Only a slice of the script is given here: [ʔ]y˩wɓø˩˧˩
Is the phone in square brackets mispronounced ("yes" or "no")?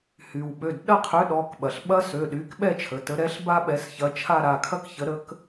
yes